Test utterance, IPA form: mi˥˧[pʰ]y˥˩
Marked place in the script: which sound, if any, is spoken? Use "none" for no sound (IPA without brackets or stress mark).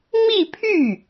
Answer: pʰ